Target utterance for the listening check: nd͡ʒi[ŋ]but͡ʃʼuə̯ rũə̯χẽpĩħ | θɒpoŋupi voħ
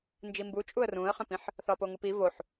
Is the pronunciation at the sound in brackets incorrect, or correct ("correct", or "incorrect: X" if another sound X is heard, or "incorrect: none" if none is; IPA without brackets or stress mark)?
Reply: incorrect: m